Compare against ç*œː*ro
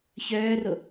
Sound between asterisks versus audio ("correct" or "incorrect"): correct